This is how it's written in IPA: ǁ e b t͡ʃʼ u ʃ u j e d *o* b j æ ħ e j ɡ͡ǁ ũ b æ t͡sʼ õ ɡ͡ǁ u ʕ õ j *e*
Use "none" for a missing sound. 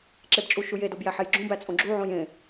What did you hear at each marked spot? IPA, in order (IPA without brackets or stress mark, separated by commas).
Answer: o, ẽ